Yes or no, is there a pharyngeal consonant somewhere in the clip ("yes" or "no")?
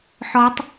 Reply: yes